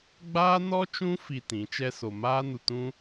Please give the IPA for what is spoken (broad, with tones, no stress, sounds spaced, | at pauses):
ɡ͡b aː˦ n ɔ˦ t͡ʃ ũ˦ f i˧ t ĩ˨˦ t͡ʃ ɛ˦ s o˧ m aː˦ n u˧ t ũ˦